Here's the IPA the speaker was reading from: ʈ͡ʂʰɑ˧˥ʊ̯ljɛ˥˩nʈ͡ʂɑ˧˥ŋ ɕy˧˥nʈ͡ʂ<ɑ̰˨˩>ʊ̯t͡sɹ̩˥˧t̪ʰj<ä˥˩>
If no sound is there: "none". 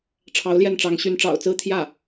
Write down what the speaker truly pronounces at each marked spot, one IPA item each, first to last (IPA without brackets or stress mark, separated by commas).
ɑ̰˨˩, ä˥˩